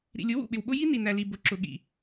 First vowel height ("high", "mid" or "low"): high